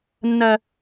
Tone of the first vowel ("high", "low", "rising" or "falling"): low